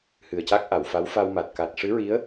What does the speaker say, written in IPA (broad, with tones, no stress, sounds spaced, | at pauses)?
h ɨ˨˩ ə̯ c a˦˥ k̚ ʔ a˨˩˨ w f a˧˥ w f a˧ w m a˨˩ t̚ k a˨˩ t̚ ʂ ɨ˧˥ ɹ i˧˥ ə̯